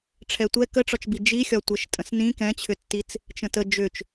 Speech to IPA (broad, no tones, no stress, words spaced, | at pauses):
ʈ͡ʂʰɛtʷɛ kəʈ͡ʂɒt͡ʃbi d͡ʒixʲɒ tʷɛʃtʼə̃snĩ kɛ̃t͡ɕʰʏtːit͡s | t͡ʃə̃tə d͡ʒʏt͡ʃ